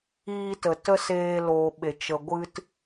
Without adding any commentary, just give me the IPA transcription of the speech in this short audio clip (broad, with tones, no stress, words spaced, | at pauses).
iː˧tə˨ tə˦ seː˧loː˨ɓe˨ t͡ʃə˨ɡʷɨ˧t